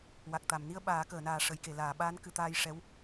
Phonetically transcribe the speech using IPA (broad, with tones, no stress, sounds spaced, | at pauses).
w a˨˩ k̚ t̪ a˨˩˨ m n i˧ ə̯ ɓ aː˨˩˦ k əː˨˩˨ n aː˨˩ ʂ ə˨˩˦ j k e˨˩˨ l aː˨˩˨ ɓ aː˧˥ n k ɨ˨˩˦ t̪ aː˧ j ʂ ɛ˧˥ w